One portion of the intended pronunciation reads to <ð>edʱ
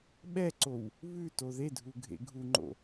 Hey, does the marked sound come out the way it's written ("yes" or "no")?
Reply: yes